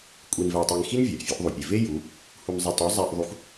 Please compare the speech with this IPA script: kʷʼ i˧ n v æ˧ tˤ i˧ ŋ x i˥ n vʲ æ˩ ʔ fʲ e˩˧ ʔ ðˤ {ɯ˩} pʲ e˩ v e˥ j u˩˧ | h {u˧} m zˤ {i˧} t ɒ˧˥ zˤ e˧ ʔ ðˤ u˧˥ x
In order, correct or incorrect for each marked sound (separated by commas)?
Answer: incorrect, correct, correct